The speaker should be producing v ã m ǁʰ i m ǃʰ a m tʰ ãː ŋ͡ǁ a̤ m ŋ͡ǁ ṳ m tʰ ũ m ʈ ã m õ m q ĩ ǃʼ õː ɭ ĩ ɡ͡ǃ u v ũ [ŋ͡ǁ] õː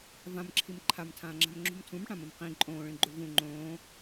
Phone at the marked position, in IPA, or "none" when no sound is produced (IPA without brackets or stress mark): ŋ͡ǃ